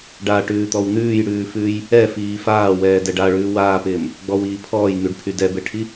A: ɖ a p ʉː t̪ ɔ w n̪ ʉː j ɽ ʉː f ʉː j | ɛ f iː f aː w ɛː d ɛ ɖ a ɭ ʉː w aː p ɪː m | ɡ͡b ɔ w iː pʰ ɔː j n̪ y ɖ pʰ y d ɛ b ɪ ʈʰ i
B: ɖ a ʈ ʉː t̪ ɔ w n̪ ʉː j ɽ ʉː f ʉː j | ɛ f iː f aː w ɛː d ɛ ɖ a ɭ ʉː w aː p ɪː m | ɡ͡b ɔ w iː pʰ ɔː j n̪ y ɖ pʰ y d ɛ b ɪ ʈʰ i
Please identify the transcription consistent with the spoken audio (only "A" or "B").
B